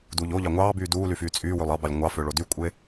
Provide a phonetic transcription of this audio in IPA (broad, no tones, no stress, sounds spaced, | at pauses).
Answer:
d uː ʎ o ʎ ɑ ŋʷ ɑː b yː d uː l y f yː t͡sʼ yː w ø lˠ ɑ b ɑ lʲ ŋʷ ɑ f ø ɭ o d y kʷʼ ɯ e̯